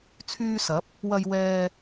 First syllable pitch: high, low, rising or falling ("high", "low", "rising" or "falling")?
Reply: high